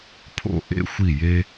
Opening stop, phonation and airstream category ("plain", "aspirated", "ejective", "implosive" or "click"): aspirated